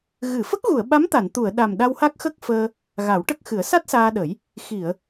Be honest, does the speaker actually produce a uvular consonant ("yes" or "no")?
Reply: no